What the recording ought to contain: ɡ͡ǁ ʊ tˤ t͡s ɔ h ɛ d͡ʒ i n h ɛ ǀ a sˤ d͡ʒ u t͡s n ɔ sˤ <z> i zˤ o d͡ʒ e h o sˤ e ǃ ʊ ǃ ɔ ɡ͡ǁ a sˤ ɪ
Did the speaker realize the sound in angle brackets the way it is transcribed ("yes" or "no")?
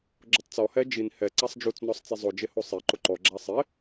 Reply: no